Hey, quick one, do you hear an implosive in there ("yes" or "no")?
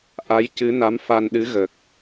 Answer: yes